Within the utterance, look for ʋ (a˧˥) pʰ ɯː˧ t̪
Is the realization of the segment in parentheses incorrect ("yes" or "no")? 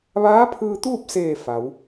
yes